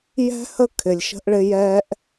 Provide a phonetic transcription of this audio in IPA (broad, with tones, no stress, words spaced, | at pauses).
jɛ̤˦hə˦ kʰɪ˨lʲʃə̤˧ʔɭɪ˧ jɛː˧ʔ